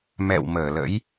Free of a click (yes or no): yes